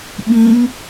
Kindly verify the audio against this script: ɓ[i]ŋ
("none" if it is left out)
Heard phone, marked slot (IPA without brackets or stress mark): ĩ